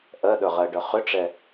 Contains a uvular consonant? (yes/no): yes